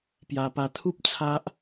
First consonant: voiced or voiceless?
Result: voiceless